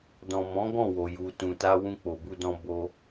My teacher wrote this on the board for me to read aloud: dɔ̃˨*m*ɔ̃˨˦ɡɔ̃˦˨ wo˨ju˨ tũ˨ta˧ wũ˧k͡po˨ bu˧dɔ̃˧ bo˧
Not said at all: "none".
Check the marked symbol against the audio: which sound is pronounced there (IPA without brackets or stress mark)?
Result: m